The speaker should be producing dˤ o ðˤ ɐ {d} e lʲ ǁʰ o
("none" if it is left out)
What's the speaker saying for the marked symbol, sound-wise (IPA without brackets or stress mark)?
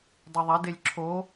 d